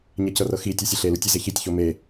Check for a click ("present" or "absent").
absent